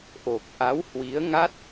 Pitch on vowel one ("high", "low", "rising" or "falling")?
low